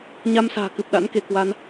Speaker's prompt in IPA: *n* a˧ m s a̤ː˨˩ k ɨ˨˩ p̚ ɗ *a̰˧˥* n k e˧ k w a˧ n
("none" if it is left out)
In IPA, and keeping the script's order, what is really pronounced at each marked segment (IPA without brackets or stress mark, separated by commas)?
ɲ, a̰˧˥